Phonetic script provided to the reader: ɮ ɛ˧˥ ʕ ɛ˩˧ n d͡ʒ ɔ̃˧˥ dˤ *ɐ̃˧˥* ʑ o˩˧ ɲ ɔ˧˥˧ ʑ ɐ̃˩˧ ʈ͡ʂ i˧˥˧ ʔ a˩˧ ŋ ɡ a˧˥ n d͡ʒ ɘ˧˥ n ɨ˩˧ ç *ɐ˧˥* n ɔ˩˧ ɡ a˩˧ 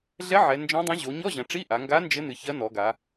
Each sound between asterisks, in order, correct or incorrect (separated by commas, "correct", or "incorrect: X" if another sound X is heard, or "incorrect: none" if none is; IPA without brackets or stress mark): correct, correct